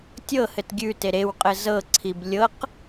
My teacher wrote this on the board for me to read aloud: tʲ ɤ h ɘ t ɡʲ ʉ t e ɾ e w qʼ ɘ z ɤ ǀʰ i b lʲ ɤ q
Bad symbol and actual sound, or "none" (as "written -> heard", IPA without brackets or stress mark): none